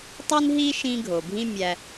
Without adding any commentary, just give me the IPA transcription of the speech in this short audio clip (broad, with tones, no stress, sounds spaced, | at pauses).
tˤ i˦ n ɦ i˦ ʃ ĩ˧ ɡʱ o˨ bʱ ĩ˦ mʲ æ˧